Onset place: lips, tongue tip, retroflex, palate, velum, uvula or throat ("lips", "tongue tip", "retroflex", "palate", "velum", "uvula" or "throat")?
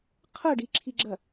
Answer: uvula